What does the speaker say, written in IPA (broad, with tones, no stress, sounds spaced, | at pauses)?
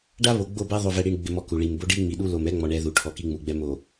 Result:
ɖ a˦ β o˨ ɡ͡b o˦˨ b ɛ˦ ðˤ o˨ v ɛ˨ ɽ i˨ ɳ ɡ͡b ɪ˨ m ɔ˨ k u˨ ɭ i˨ m b o˦ ɖ i˦ ŋ͡m i˨ ɗ u˦ l o˨ m ɛ˦ ŋ͡m ɔ˨ ɳ ɛ˨ ð u˨ ʈʰ ɔ˨ k i˦ ŋ͡m u˨ ɡ͡b ɛ˨ m o˨